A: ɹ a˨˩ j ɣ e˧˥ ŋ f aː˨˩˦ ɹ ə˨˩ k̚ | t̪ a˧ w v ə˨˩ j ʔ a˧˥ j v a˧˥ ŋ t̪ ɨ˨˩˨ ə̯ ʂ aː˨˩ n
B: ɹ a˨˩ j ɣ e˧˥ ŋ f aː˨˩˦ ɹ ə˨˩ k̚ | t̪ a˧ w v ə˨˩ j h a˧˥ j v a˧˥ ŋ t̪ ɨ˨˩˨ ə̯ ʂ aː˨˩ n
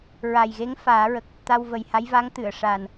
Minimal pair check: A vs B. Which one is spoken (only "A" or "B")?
B